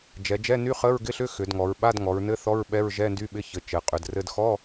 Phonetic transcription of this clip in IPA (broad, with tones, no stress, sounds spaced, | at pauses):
d͡ʒ ɛ˩˧ d͡ʒ ɛ˧˥˧ n y˧˥˧ χ ə˧˥˧ ɹ ɡ ɪ˧˥˧ ɬ ʏ˧˥˧ x ʏ˩˧ d ŋ ɔ˩˧ ɹ ɓ a˧˥˧ d ŋ ɔ˩˧ ɹ n ɘ˧˥˧ θ ɔ˧˥˧ ɹ ɓ ɛ˧˥˧ ɹ ʒ ɛ˧˥˧ n d y˧˥˧ ɓ ɪ˧˥˧ ç ɘ˩˧ t͡ʃ ɘ˩˧ qʼ ʏ˩˧ d r ɘ˧˥˧ d x ɔ˧˥˧